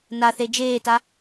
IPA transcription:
n a θ e d͡ʒ eː t a

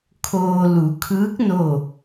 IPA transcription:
kʰ oː˧ l u˩˧ kʰ ɯː˧˥ k̚ n o˥˨

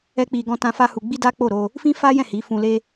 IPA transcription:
ɛ˦ k͡p i˧ ɡ ɔ̃˦ t ã˦ f a˦ h u˧ ɡ͡b i˦ d a˦ k͡p o˦˨ ɾ o˧ | f ĩ˦ f a˦ j ɛ̃˦˨ h i˨˦ f ũ˧ l e˦

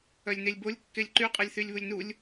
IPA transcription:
œ lʲ n e lʲ b o lʲ kː e lʲ ǃ y qʼ e lʲ θ y lʲ β u lʲ n u lʲ

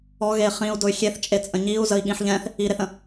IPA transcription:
ɔ ɣ e χ ĩ u̯ d ʊ y̯ xʲ e θ t͡ʃʼ e t͡sʼ ə̃ ɲ i u̯ z ə i̯ ɠ ĩ ħ ʎ ɛ̃ θ | i ɾ e θ ə̃

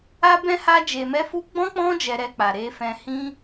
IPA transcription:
a˦ b ɛ̃˦ h a˦ d͡ʒ e˧ m ɛ˦ f u˦ ɡ͡b ɔ̃˦ k͡p ɔ̃˦ d͡ʒ ɛ˧ ɾ ɛ˧ k͡p a˨ ɾ e˧ f ɛ̃˧ h ĩ˦

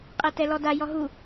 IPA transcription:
qʼ ɛ t ɛ l ɔ d a j ɔ ɦ u

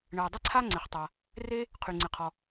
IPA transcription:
ɳ ə˩ e̯ dˤ ɪ˥ ǀʰ a˥ ŋ͡ǀ ɪ˩ χ tˤ a˩ | r e˥ | qʰ y˩ ŋ͡ǀ ɪ˩ qʰ ɔ˩

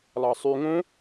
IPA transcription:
lˠ ɑ sˤ y ŋ õ

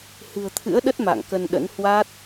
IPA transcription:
h ɨ̤˨˩ ə̯ t̪ʰ ɨ̰˧˥ ə̯ ɗ ə˦˥ t̚ m a̰˧˨ ŋ k ə˧ n ɗ ə̰˧˥ n h w a˦˥ t̚

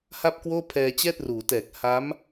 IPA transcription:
h a˥˩ p̚ k w oː˥˩ pʰ ɛː˧ t͡ɕ ɛː˥˩ t̚ r uː˩˦ t ɛː˨˩ k̚ h a˦˥ m

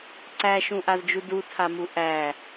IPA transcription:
ǀ æ ʃ ũ ʔ a z d͡ʒ u d u tʰ a m u ʔ æ

